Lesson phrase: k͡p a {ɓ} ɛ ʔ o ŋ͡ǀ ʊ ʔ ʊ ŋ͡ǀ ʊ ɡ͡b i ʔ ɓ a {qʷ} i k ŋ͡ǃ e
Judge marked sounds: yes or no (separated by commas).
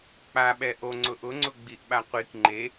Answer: yes, yes